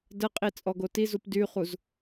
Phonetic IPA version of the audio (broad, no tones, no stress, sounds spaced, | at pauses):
d ə qʼ i t͡sʼ ɔ ɡ o t i z u p d y χ u z